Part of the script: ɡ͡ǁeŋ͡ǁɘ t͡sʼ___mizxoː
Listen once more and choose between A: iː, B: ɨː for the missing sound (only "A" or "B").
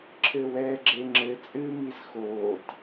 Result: B